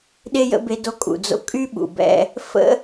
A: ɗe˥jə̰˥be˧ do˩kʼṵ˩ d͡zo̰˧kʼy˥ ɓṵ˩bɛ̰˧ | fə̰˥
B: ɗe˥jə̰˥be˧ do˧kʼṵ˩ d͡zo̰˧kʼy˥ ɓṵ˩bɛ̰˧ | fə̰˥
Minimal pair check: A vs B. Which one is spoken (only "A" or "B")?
B